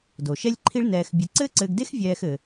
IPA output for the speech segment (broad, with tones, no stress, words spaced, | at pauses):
do˨ʃɛ˦lʲǃʰi˦ɭ nɛː˧xbʲɨ˧ ǀɘː˦ǀɘː˧ɡde˦x vʲɛː˦xɘ˧